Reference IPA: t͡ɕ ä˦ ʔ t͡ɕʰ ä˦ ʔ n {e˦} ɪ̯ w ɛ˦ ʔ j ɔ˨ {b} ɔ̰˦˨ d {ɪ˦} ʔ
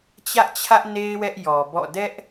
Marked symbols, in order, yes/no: yes, yes, no

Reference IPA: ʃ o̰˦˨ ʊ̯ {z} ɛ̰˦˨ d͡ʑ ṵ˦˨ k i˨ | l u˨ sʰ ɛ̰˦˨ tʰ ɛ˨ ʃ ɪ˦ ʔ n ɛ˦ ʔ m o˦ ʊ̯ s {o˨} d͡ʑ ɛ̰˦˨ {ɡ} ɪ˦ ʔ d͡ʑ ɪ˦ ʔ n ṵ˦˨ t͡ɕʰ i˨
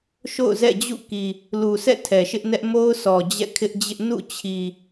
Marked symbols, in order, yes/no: yes, no, no

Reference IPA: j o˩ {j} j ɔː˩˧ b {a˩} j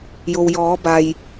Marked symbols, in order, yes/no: no, yes

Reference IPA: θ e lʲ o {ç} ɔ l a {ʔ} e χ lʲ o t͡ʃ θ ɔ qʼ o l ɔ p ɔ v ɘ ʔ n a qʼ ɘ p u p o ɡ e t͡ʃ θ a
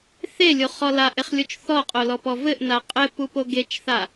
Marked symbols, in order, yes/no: no, yes

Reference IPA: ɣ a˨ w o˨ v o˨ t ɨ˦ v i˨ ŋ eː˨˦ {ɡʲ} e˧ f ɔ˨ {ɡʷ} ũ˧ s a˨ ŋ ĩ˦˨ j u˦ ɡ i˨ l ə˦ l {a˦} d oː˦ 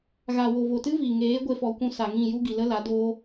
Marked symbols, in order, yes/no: no, no, no

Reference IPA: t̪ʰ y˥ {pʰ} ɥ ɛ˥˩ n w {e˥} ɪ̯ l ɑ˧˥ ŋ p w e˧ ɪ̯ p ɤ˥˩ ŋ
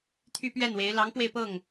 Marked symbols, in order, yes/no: no, no

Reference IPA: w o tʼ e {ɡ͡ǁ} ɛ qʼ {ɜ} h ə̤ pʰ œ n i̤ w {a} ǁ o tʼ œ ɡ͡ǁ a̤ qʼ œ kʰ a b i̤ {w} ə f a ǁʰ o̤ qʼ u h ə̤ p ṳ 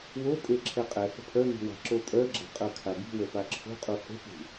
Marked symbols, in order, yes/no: no, no, no, yes

